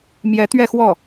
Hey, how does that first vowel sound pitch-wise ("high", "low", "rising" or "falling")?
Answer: rising